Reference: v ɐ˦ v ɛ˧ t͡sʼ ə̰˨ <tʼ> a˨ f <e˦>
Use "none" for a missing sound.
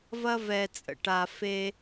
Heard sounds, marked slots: ʈ, e˦

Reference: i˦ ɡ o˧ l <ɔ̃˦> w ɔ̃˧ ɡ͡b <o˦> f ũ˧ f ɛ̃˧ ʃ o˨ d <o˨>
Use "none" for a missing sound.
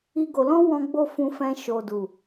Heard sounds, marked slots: ɔ̃˦, o˦, u˨

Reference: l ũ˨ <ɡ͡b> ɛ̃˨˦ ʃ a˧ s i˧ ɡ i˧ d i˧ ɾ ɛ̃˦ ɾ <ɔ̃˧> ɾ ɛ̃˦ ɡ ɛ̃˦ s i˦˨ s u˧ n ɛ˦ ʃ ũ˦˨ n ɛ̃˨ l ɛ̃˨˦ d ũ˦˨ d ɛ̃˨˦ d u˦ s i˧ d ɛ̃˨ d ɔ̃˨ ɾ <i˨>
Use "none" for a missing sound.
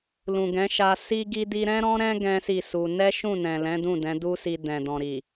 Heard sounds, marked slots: ɡ, ɔ̃˦, i˨

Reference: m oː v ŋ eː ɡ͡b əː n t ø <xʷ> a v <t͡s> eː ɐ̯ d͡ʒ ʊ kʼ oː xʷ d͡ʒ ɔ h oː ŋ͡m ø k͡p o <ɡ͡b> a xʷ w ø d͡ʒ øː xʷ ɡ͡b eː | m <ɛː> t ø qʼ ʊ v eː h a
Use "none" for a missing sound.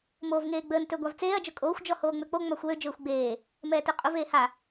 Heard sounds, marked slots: ɡʷ, t͡s, ŋ͡m, ɛː

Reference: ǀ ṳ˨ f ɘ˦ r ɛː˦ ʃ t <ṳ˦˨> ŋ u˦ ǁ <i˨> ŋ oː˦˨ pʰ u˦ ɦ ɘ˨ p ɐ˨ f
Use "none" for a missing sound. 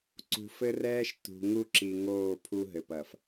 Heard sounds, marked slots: ṳ˨, i˨

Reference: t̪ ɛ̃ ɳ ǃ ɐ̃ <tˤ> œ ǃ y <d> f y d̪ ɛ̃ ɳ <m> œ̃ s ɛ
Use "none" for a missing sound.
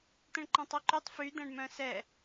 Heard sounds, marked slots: tˤ, tˤ, m

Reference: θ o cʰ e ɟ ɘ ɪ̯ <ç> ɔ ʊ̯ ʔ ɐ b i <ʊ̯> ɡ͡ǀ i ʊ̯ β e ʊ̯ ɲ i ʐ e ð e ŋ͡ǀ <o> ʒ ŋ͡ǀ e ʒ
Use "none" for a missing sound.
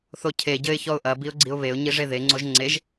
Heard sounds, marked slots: ç, ʊ̯, o

